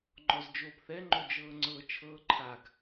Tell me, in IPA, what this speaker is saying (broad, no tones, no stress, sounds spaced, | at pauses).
ŋ͡ǃ ɔ z d͡ʒ oː p θ ɛ ŋ͡ǃ o d͡ʒ ɤː ŋ͡ǀ ɤ t͡ʃʰ ɤː ǃʰ a ɡ